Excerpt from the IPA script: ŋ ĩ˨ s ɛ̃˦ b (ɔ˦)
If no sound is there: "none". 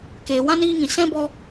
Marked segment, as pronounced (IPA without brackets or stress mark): ɔ˦